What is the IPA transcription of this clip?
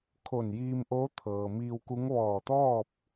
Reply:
kʰ o˧˩ n j iː˧ m ʔ oː˧˥ t̪ʰ ɤː˩ m iː˧ w k u˧˥ ŋ ʋ ɔː˧˩ t̪ ɔː˥˨ p̚

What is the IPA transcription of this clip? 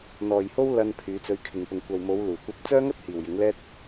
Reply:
n̪ ɔː˨ j h o˥ w l ɐ˧ n pʰ yː˨˧ t͡s ɵ˨˧ ɥ kʰ ɪ˨ ŋ p ʊ˨ ŋ kʷ ɐ˨ w m o˨˧ w l uː˨˩ kʷ ɐ˧ p̚ t͡s œː˥ ŋ ɐ˥ t̚ h iː˨ w j ɪ˨˥ ŋ l ɛː˥ t̚

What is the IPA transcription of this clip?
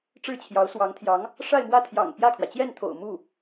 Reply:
ʈ͡ʂ ɻ̩˥˩ t͡ɕʰ j ɑ˧˥ ʊ̯ s w ɑ˧˥ ŋ t̪ʰ j ɑ˧˥ ŋ | ʂ a˥˧ ɪ̯ m w ä˥˩ t̪ʰ j ɑ̰˨˩ ŋ p j ä˥˩ kʰ w ä˩ t͡ɕ j ɛ˥˩ n t̪ʰ o̰˨˩ ʊ̯ m u˥˩

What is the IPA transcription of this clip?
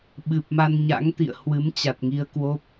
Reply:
ɓ ɨ˨˩ p̚ m a˧ n ɲ a̰˧˥ ŋ t̪ ḭ˧˨ ə̯ h w ɨ˨˦ m t͡ɕ a˨˩ t̚ ŋ i˧ ə̯ k w o˦˥ p̚

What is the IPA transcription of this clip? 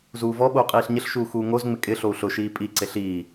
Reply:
z uː v ɔ ɓ o u̯ qʼ iː ɬ ɲ ɪ ɬ ʃ uː x uː ŋ o z ŋ͡m ɪ kʼ ɪ ɬ o u̯ ɬ ʊ ʃ iː pʼ i ǀ e ɬ iː

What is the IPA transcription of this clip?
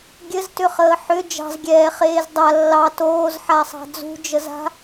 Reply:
ɡʲ ɘ z t ʏ χ əː ħ ʏ d͡ʒ ɑ̤ z ɡʲ ɛː χ eː z dˤ a lː ɑ t oː z ħ a sˤ ɑ̤ d͡z ṳ d͡ʒ ə z a̤

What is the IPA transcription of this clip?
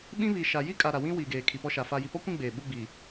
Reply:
ɓ ĩ˦ β i˨ ʃ a˨ j i˦ kʼ a˨ ɾ a˨ w ĩ˦ w i˨ ɡ eː˨ kʰ i˨ p ɔ˦ ʃ a˨ f a˨ j i˨ p ɔ˦ kʷ ĩ˦˨ ɡ͡b eː˨ ɓ u˦ ɡ͡b i˨

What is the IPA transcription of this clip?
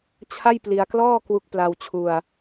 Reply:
t͡ɕʰ a˥˩ j p l i˧ a̯ k l ɔː˥˩ k w u˦˥ k̚ p l a˧ w t͡ɕʰ u˧ a̯

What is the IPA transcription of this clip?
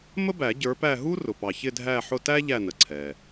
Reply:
m ə˥ b æ˨˩˦ ɟ ə˞˨˦ p æ˦˨ ɦ u˥ r ʊ˩ p ɑ˩ ç ɪ˦˨ dʱ æ˦˨ ħ ʊ˦˨ t æ˥ ʎ æ˦˨ n ə˩ ǀʰ ɛ˩

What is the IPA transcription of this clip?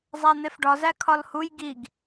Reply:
zˤ æ n̪ e f ɖ ɒ z æ kʰ ɒ l h u j ɡ i ɡ

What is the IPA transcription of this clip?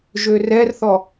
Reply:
ʒ ø r ɛ r θ ɔ

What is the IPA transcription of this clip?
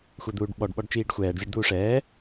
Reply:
xʷ ɛ d̪ uː ɖ ɓ ɔ ɖ ɓ ɔ ɖ t͡ʃ iː ɖ xʷ ɛː ɖ zʲ ɔ ɖ d̪ uː ʂ ɛː

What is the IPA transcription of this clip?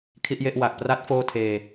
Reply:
kʰ i˥˩ ʔ j e˥˩ ʔ w a˨˩ k̚ p r a˦˥ t̚ f oː˥˩ tʰ eː˧

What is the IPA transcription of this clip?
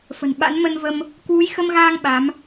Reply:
f ə̤˨˩ n ɓ a̰˧˥ n m ə˧ n v ə˧ m | k w u˨˦ j x ə˧ m ɣ aː˧ ŋ ɓ a˨˦ m

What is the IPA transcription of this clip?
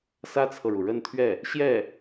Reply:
s ä˥ t͡sʰ ɤ˨ ɻ u˩ ɻ ə˥˧ n t̪ʰ ɥ ɛ˥˩ | ɕ j ɛ˥˩

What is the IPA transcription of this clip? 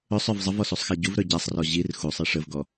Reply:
ɵ sˤ œ v zˤ ə v ɔ s u sˤ x a ɟ u v ɾ œ ɟ a sˤ r ɔ ʑ i r x u sˤ i ʂ ə v ɡ ɔ

